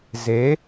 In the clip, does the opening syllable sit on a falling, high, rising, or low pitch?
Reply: rising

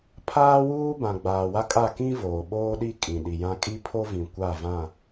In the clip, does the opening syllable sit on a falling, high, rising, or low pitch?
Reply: high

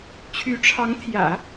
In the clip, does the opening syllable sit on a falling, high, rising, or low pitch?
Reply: rising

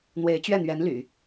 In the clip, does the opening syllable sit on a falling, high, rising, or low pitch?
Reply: rising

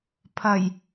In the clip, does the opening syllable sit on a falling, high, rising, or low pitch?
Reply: low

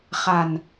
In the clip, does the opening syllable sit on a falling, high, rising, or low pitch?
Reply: low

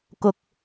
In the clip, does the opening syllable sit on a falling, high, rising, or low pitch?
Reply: low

